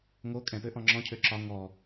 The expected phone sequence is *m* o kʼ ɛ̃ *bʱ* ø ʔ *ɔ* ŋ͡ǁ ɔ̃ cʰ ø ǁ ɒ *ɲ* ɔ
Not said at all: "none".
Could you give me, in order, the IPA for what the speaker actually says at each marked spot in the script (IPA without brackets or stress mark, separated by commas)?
ŋ, p, ɔ̃, ŋ